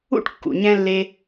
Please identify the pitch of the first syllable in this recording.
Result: high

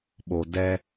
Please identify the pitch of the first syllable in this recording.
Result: low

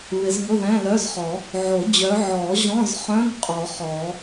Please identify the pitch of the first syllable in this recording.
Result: rising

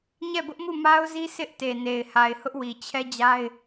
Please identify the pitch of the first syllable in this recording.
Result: falling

